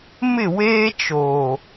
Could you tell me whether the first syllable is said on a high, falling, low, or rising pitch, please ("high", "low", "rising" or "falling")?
falling